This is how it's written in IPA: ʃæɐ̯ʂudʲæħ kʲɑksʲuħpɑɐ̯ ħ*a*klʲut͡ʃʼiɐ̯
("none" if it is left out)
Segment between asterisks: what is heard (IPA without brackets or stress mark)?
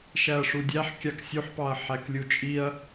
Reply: æ